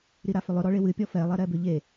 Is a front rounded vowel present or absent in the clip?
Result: present